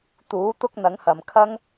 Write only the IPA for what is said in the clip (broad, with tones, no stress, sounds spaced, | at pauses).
t̪ uː˨˥ t̪ ʊ˥ k̚ n̪ ɐ˨˥ ŋ h ɐ˨ m kʰ ɐ˥ ŋ